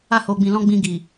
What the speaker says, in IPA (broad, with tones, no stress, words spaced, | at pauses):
a˧ ho˨ɡ͡bĩ˨lɔ̃˧ ɡ͡bĩ˧ɡi˨